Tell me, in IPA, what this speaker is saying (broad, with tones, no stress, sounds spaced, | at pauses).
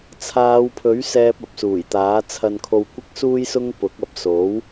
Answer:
t͡sʰ aː˨˧ w pʰ ɵ˨˥ ɥ s ɛː˧ p̚ ɐ˨ p̚ s uː˨˩ j t̪ aː˨˥ t͡sʰ ɐ˧ n kʰ o˧ w kʷ ɪ˥ k̚ s uː˥ j s ʊ˥ ŋ p ʊ˨˥ k̚ ɐ˨˥ p̚ s o˨˥ w